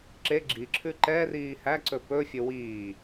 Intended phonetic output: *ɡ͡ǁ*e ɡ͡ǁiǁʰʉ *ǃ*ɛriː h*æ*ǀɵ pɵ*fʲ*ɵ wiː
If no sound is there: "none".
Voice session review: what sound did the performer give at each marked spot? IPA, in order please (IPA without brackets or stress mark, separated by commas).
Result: ǁ, ǃ, æ, fʲ